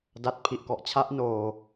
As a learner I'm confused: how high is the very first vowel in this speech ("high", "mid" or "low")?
low